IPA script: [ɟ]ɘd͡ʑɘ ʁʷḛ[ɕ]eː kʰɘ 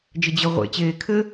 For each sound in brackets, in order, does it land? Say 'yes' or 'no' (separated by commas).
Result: no, no